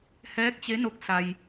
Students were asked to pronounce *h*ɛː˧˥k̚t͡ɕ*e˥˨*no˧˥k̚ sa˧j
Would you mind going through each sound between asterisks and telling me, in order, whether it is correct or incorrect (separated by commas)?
correct, incorrect